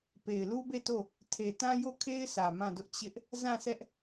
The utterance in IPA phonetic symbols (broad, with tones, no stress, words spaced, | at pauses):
pe˨ɪ̯lu˦be˦˨to˦˨ | tʰe˨tã˦ jo˦˨kʰe˦ɪ̯sä˨ mã˦˨dʊ˦ʔ t͡ɕɪ˦ʔ | zã˦˨sɛ˦ʔ